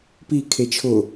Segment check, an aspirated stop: present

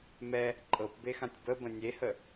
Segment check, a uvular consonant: absent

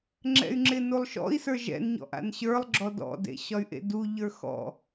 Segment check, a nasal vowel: absent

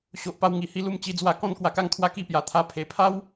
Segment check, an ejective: absent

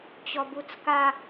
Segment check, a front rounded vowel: absent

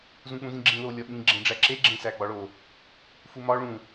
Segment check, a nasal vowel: present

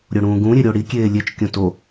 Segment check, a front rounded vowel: absent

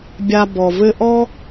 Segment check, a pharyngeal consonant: absent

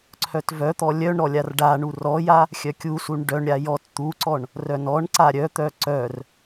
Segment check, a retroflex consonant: present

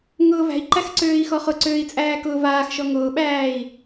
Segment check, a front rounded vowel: present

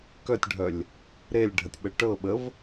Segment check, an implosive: present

